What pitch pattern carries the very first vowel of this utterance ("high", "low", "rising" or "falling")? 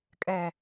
high